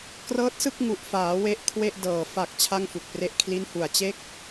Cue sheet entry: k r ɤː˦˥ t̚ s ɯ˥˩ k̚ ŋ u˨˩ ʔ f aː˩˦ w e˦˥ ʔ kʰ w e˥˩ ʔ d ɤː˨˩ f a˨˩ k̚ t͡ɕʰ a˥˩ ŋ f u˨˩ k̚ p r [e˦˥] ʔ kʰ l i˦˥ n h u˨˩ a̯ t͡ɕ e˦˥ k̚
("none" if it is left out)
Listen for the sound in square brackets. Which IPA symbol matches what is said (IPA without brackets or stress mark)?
e˦˥